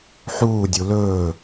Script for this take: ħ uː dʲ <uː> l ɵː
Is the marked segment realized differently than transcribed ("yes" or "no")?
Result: yes